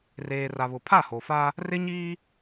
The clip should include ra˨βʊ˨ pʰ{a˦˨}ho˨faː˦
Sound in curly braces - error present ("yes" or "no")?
no